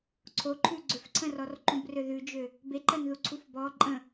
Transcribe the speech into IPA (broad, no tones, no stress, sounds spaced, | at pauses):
ǀʰ o ǃʰ ʉ ɡ͡ǀ ø f ǀʰ ə̃ r ɔ r ǃ ũ b r ø ð ʉ d͡ʒ ø | b e ǃ ɜ n ð u ǀʰ u f b ɔ ǃʼ ə̃